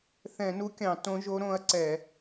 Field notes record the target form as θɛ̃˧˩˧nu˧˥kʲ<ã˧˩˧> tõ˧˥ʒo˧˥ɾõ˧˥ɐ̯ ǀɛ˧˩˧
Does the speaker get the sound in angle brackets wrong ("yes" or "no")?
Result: yes